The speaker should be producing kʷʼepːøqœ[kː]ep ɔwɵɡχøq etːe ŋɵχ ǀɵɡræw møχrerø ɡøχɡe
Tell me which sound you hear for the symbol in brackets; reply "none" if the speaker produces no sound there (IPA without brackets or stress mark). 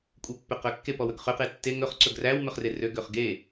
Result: kː